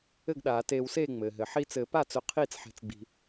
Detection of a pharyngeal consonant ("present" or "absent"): present